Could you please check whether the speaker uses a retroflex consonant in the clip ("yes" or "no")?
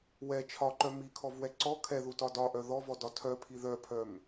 no